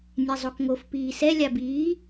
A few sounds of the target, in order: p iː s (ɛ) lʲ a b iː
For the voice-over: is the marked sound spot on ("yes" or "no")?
yes